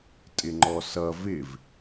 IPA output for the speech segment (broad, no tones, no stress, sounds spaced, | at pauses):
tʼ ɪ ŋ͡ǃ ɔ s ʌ v ɪ v